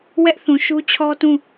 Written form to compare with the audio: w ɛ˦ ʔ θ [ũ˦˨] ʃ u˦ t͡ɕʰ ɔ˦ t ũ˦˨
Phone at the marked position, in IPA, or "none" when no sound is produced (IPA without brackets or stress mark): ũ˨